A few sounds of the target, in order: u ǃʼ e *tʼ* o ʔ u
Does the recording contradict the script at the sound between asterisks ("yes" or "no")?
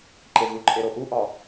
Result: yes